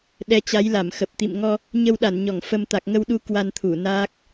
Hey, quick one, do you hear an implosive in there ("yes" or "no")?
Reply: yes